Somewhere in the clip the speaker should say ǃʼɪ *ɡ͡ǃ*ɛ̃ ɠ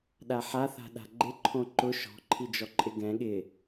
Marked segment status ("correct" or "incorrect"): incorrect